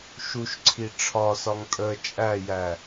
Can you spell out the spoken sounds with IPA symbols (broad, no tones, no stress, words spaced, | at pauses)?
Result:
ʃuʃǀʰi ʈ͡ʂʰɒsɒŋ tʼə t͡ʃʼæjæ